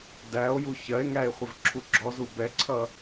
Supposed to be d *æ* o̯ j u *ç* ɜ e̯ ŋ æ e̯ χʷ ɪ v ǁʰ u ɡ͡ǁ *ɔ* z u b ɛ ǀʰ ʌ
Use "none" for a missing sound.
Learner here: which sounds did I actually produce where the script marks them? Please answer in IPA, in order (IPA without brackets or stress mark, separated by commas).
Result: æ, ç, ɔ